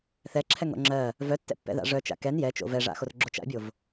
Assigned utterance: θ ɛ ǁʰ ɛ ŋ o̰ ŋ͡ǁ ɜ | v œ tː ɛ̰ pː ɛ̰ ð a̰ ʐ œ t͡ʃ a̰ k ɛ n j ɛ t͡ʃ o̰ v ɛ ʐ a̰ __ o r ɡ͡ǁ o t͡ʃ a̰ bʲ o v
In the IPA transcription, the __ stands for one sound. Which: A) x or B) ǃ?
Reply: A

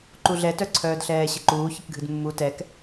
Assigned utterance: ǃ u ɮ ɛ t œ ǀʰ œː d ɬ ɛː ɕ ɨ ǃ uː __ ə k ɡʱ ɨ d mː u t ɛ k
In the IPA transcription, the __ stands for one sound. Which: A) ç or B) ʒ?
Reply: A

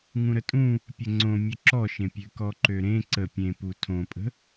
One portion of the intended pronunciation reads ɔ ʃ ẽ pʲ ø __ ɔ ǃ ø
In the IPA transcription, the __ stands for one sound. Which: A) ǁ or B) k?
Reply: B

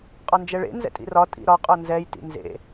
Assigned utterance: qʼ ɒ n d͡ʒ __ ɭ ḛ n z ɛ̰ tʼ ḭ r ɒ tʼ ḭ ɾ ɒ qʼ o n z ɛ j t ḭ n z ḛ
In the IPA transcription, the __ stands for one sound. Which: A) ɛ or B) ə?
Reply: A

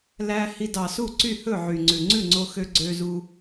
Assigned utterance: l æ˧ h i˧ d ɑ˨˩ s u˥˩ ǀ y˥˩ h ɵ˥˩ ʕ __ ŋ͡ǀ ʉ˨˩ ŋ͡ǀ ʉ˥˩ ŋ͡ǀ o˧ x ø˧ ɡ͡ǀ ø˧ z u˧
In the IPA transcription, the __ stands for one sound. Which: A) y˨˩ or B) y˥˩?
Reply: A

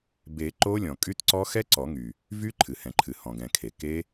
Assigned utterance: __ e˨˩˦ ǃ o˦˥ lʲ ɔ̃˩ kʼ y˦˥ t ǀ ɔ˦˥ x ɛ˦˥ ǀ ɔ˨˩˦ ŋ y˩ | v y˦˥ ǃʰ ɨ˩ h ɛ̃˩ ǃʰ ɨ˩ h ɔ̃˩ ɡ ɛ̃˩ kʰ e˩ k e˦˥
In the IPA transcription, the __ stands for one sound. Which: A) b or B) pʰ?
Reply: A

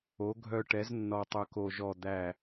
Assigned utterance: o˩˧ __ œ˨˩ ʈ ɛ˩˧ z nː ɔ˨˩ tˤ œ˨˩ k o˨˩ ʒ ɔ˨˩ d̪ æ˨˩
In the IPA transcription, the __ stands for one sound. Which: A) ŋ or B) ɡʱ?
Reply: B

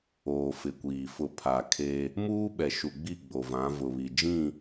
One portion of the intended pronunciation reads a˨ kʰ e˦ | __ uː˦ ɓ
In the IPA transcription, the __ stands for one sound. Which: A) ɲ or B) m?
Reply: B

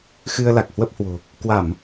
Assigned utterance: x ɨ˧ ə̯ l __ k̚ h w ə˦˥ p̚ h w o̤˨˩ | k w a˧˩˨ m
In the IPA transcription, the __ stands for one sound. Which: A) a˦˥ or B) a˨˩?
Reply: B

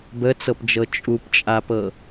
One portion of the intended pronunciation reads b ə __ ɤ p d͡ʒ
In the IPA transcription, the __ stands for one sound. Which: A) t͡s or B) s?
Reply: A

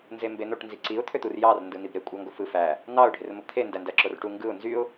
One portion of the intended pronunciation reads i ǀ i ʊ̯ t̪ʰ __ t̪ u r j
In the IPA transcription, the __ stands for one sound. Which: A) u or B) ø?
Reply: B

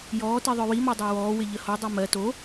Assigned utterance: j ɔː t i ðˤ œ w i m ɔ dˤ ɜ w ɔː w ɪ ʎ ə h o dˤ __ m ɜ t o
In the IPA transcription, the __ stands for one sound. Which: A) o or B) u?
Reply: B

